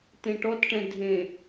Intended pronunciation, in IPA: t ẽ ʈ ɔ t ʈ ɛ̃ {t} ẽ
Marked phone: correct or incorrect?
incorrect: dʱ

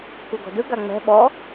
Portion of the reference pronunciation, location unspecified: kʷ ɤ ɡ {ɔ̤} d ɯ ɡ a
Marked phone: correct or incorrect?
correct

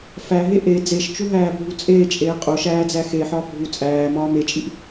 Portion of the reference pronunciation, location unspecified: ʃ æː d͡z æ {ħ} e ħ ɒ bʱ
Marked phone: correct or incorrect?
incorrect: x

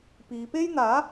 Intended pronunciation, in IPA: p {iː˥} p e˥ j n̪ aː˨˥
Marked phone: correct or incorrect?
incorrect: iː˨˧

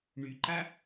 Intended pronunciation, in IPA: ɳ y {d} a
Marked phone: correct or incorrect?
incorrect: ǃ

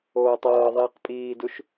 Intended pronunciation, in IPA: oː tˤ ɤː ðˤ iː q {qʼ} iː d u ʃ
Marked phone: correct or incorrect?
incorrect: pʼ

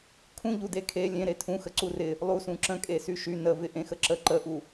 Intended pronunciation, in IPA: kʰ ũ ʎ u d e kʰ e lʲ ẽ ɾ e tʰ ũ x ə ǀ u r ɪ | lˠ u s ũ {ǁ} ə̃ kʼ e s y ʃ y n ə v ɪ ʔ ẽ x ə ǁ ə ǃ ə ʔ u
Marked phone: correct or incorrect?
correct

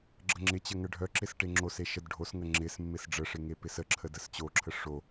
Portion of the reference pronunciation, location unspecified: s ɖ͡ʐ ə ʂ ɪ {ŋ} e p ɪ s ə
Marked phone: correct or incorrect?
correct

